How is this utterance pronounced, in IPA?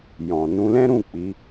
j ɔ̃˨ n ũ˧ l ɛ̃˦ ɾ ũ˦˨ k͡p i˨˦

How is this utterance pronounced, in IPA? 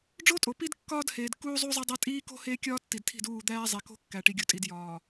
ɖ͡ʐ o˦ tʼ o˨ p i˦ d kː ɒː˦ d h eː˨ d k uː˦ zˤ u˦ zˤ e˦ dˤ æ˦ tʼ iː˦ k o̤˦ h eː˦ kʲ ɒː˦ tː i˨ d tʰ i̤˦˨ d uː˦˨ d̪ æː˦ zˤ e˨ k o̤˦ kː æ˨ ʈ i˨ ɡʲ u˨ tʼ i˨ d j ɒː˨

